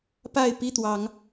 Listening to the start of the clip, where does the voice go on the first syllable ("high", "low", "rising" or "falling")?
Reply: falling